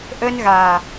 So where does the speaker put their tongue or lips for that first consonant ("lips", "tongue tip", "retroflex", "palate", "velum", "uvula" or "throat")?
throat